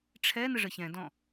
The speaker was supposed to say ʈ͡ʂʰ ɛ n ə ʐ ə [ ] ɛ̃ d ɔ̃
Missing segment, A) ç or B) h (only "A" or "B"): A